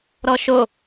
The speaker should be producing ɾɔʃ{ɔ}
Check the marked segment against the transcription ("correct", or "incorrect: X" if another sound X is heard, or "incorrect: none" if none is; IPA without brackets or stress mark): incorrect: o